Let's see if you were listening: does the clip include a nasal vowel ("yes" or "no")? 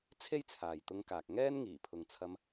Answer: no